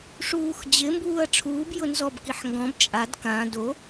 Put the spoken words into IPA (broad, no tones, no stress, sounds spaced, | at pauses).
ʂ uː x d͡ʑ ɪ m b uː ɐ̯ ʈ͡ʂʰ uː b j ʊ n z ɔ b k i ħ ŋ ɡ ɔ̃ b t͡ʃʼ a d k ã d o